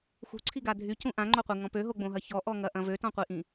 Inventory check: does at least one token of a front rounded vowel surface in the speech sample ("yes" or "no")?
yes